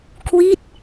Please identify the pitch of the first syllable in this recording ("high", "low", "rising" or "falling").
falling